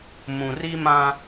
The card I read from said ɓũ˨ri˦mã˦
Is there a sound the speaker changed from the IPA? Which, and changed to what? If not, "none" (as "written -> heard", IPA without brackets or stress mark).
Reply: ɓ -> m